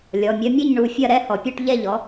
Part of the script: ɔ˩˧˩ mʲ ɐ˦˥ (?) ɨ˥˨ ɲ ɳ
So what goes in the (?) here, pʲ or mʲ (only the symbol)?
mʲ